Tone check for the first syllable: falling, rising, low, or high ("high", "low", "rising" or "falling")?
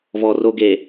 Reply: low